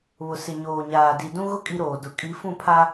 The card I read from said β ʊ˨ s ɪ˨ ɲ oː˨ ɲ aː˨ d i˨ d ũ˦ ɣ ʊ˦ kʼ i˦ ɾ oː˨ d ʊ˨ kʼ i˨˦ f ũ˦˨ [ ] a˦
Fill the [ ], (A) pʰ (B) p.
A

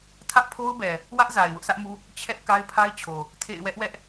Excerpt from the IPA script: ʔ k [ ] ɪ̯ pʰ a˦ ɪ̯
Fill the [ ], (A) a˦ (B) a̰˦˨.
A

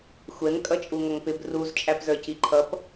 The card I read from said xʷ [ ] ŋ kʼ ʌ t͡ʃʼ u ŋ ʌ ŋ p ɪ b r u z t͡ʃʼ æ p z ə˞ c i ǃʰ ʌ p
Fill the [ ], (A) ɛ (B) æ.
A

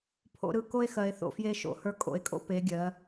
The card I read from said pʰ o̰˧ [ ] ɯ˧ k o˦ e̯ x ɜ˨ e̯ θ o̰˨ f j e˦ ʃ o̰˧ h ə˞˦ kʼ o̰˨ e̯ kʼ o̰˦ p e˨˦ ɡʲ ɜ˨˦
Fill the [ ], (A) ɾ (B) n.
A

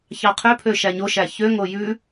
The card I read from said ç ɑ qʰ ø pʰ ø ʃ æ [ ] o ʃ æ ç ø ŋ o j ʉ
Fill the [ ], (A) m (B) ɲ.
B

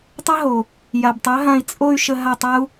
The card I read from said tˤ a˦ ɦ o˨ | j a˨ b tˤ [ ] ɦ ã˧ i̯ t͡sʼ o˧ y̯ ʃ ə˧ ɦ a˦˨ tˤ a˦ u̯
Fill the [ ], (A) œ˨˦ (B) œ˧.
A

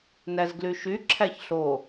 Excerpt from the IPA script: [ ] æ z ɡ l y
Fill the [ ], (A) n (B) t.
A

